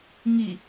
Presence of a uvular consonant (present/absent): absent